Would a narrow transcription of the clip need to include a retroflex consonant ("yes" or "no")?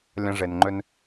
yes